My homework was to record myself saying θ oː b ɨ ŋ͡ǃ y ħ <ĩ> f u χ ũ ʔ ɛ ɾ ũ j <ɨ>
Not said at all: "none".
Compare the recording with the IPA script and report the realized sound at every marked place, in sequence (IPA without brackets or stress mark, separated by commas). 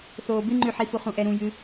i, ɨ